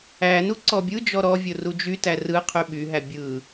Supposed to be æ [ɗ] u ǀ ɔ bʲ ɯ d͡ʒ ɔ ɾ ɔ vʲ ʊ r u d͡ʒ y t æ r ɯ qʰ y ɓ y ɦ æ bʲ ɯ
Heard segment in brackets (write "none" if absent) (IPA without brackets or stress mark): n